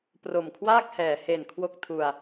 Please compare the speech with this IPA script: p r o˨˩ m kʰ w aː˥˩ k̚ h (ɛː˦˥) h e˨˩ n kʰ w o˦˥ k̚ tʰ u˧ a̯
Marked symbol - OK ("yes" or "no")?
no